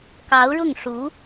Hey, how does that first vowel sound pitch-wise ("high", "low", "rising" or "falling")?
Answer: rising